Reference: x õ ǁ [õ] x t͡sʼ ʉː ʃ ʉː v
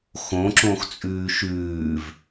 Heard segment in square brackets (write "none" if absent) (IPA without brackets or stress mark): õ